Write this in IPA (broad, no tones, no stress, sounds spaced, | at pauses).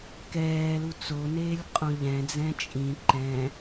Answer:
k ɛː l u t͡s o n eː lʲ qʼ õ ʎ ɛ̃ d͡z ɛ̃ t͡ʃʼ ĩ ǃ ɛ̃